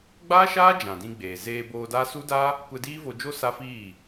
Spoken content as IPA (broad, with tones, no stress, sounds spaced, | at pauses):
ɡ͡b aː˦ ʃ aː˦ d͡ʒ ã˨ d ĩ˧ ɡ͡b eː˨ z eː˧ b oː˧ d a˦ s u˦ d a˦ | kʷ ɛ˧ d iː˦ v o˧ d͡ʒ o˦ s a˦ f iː˦˨